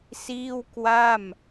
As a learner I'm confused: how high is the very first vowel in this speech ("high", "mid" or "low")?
high